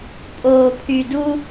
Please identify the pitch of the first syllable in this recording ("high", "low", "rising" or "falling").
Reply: low